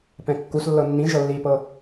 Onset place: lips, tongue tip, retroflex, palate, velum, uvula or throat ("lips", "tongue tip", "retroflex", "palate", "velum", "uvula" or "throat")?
lips